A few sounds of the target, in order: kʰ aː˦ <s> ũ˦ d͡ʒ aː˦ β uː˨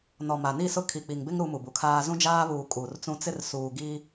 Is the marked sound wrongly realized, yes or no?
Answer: yes